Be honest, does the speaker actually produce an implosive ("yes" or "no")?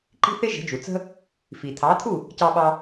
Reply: yes